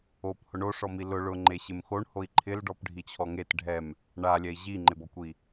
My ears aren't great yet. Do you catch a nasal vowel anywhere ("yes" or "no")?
no